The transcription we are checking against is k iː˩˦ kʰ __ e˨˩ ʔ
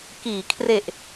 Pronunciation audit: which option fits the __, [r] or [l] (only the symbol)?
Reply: r